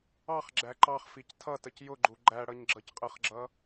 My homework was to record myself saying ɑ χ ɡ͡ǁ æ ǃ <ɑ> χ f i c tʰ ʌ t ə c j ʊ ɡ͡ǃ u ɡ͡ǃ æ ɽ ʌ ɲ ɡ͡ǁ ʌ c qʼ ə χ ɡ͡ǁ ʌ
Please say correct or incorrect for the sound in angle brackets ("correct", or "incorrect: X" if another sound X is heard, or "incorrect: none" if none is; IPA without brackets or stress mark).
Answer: correct